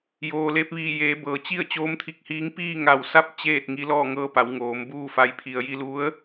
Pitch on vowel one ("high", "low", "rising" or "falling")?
low